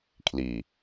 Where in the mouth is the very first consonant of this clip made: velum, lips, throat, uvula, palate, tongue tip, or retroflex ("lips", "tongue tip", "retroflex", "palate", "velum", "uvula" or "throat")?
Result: velum